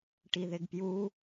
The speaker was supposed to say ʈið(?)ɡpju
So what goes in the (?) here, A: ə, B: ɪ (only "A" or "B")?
B